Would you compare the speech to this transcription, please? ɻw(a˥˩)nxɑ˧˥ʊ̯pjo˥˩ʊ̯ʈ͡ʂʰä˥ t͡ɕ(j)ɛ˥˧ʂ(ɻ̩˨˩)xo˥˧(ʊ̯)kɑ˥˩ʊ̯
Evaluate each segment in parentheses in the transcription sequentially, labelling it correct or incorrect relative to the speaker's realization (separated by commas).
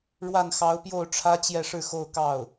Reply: correct, correct, incorrect, correct